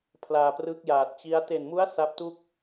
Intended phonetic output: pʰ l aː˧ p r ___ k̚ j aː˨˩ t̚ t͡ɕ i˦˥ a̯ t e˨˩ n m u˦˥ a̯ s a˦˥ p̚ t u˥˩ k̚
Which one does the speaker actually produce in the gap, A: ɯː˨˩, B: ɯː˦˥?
B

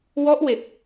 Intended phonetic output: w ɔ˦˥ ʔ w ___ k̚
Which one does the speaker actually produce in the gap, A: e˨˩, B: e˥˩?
A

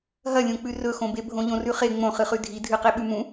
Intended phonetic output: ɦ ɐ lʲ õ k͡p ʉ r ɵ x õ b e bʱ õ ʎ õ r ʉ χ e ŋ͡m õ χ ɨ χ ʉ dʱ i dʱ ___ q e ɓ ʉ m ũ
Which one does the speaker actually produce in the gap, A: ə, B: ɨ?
B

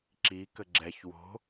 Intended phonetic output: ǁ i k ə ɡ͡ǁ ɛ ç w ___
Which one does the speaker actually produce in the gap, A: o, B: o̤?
B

